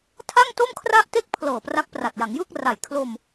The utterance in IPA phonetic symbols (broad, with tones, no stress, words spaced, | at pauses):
tʰa˥˩ŋto˥˩mkʰra˥˩ʔte˥˩k̚ pʰlɤː˨˩pra˦˥k̚pra˨˩t̚ ja˩˦ŋjɯː˥˩k̚ra˨˩j kʰlo˧m